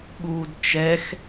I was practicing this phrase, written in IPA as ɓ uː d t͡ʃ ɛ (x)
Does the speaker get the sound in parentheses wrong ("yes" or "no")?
no